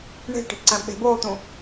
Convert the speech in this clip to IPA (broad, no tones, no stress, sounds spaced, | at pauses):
ɳ e̤ ʈ e̤ b ǀ æ̃ ɓ e̤ b oː t̪ ũ